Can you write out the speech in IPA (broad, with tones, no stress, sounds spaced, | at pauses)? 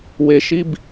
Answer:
w e˨ ʃ i˦ b